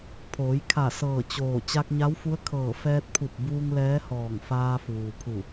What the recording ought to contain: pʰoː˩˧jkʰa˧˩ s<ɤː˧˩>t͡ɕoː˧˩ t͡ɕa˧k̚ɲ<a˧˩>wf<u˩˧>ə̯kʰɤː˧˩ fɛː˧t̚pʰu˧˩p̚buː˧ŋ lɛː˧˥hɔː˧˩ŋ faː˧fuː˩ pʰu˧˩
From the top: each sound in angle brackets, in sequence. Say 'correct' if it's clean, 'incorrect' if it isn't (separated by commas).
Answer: correct, incorrect, incorrect